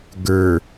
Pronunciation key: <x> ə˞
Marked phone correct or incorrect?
incorrect